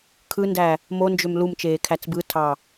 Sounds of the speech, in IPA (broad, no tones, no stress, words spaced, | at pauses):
kʰɯndæ | mond͡ʒøm lumt͡ʃeːkʰæt͡s bɯtʰɑ